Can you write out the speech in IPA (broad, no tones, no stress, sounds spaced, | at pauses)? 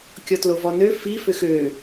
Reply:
kʲ ɔ t l o v ɔ n ø f i f ʏ x ø